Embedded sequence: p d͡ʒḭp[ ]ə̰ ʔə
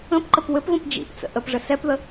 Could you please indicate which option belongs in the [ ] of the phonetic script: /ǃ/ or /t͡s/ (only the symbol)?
t͡s